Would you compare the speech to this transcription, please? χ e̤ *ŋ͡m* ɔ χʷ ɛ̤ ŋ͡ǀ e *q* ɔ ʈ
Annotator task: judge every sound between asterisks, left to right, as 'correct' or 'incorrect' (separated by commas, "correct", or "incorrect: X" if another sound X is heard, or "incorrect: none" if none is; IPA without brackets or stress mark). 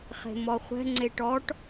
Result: incorrect: m, incorrect: ʈ